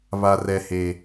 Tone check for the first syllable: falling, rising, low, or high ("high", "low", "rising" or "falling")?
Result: high